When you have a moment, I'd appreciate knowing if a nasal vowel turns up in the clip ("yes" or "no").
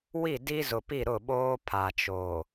no